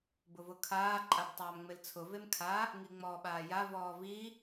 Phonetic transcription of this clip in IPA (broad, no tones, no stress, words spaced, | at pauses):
bʊvʊkʰaː ǃʼabtˤaːmŋ͡mɪlt͡sʰʊ vemkʰa | ŋiŋ͡mɔːɓaːja vɔːvi